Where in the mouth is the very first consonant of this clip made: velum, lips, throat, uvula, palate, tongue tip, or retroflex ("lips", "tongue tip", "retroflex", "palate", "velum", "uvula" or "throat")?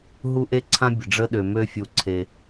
throat